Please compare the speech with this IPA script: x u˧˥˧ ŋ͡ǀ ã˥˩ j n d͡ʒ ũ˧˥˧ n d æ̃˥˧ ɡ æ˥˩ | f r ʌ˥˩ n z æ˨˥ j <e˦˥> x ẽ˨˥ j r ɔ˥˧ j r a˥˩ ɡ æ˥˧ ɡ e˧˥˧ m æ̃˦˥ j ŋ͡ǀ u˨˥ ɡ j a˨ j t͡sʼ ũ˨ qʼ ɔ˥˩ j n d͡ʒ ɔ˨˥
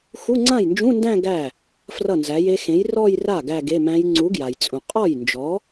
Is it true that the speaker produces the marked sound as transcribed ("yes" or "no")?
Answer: yes